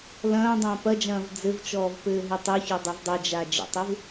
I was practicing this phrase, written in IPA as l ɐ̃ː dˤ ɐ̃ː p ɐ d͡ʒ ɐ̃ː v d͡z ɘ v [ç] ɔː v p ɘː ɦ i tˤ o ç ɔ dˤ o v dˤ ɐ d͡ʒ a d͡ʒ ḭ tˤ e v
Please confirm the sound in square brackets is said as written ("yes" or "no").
no